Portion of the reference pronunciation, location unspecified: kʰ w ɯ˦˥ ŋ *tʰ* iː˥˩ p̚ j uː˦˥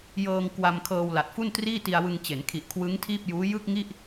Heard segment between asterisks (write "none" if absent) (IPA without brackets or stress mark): tʰ